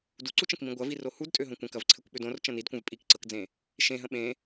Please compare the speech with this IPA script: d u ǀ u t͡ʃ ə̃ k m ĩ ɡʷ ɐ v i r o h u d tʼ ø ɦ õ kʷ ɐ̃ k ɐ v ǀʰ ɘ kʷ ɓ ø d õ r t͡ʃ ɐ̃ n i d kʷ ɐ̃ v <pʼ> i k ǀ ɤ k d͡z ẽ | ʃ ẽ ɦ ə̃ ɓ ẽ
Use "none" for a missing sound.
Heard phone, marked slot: pʼ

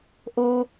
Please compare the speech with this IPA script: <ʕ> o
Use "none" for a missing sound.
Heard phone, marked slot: ʔ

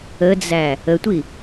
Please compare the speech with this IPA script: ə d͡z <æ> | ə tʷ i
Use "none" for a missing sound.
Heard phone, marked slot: æ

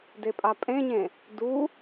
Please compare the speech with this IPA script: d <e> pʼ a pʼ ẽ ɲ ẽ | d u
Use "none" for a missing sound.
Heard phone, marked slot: e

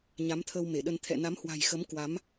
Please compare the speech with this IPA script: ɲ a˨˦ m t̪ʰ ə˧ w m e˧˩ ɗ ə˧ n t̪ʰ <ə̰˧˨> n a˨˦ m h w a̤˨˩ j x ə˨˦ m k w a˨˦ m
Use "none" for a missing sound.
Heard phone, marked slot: ɛ̰˧˨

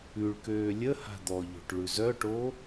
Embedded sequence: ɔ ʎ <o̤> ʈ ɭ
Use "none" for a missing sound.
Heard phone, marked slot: o̤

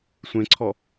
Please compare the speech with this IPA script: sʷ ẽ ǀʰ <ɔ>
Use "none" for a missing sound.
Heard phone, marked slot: ɔ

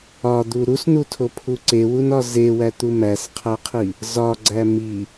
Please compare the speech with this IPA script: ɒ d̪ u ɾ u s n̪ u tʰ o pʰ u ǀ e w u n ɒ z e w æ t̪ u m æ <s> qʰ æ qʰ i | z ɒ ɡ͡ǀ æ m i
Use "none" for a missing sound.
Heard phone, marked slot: s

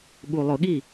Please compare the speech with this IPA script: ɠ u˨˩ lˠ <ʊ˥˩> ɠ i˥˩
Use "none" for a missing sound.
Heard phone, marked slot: ʊ˧˩˧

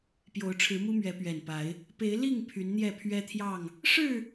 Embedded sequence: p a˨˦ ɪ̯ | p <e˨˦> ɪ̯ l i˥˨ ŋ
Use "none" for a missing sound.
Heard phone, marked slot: e˨˦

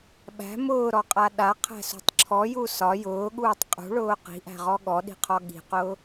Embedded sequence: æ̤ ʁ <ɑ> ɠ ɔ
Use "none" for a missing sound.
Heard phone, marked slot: ɔ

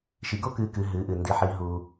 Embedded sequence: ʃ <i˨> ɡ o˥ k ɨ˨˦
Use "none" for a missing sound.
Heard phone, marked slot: i˨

